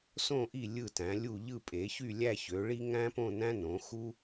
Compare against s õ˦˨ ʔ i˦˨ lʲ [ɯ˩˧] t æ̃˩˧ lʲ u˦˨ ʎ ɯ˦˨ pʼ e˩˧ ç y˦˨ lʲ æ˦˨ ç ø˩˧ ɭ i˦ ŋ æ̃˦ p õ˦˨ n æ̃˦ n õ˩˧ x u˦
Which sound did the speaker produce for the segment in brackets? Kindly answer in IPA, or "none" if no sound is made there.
ɯ˦˨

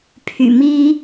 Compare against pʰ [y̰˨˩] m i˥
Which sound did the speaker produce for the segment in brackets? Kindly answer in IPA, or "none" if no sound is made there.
y̰˨˩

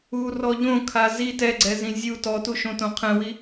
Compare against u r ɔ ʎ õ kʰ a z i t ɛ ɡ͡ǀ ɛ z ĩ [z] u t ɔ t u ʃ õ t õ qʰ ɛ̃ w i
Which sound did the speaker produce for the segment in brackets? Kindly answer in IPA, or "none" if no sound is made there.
zʲ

